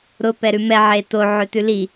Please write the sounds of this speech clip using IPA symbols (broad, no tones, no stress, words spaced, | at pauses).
ɾʊ pɛɾʉmɛ ʕeto ʕøtʉli